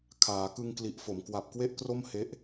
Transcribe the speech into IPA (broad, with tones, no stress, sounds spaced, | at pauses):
kʰ aː˩˦ k ɯ˧ ŋ k l i˨˩ ʔ f o˩˦ m k w a˨˩ p̚ k w e˥˩ ʔ k r o˥˩ m h e˦˥ ʔ